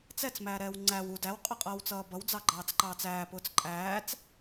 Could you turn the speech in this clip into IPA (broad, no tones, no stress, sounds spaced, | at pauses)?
t͡s ɛ t͡s m æː ɾ ɛː w ŋ͡ǀ æ w u d æ w qʼ ʌ qʼ ʌː w t͡s ʌː b ʌ w d͡z ɑ ɡ͡ǃ ɑː t͡s ǃ ɑː t͡s æː p ʊː t͡s ǃʼ æː t͡s